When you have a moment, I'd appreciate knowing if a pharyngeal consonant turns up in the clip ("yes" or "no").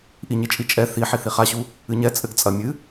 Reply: yes